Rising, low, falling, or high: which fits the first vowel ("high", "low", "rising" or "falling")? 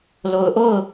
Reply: low